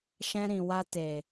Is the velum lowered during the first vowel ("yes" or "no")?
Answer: yes